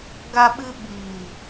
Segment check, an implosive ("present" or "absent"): present